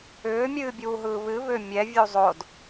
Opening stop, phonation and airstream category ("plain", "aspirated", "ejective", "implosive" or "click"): plain